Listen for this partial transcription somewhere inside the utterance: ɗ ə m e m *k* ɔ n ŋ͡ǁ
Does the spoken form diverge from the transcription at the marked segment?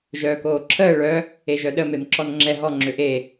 yes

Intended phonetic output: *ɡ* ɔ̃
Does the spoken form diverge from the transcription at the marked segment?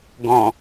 no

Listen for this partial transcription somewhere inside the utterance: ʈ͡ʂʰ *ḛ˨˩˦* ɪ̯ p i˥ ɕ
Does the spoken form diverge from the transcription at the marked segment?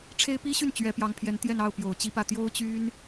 yes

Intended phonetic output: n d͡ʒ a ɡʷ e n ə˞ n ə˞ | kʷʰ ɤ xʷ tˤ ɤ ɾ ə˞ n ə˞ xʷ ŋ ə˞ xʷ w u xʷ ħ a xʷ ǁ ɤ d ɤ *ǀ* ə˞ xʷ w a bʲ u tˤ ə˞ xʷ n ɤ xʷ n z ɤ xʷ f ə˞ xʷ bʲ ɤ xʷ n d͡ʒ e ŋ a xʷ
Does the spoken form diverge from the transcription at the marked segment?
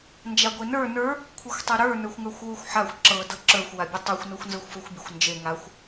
yes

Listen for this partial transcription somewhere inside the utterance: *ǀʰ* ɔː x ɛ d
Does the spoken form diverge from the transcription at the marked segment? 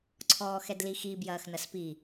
no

